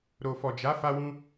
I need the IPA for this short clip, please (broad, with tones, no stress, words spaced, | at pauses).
ɾo˨fɔ˨d͡ʒa˨˦ fa˧wũ˧